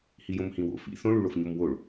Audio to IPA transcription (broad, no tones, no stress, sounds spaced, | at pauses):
h i j õ m h ĩ w o̰ f ḭ θ õ ɭ u ɭ o f ɲ o m w o ɭ